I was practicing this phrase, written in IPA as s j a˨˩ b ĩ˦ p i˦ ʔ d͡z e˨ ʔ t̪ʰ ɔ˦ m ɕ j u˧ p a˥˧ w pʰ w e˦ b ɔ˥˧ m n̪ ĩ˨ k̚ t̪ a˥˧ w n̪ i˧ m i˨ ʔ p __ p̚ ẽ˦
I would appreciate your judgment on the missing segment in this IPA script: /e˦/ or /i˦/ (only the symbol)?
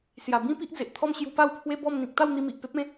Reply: e˦